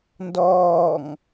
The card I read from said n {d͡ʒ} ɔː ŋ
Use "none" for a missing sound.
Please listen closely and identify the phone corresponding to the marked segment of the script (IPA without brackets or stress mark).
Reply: d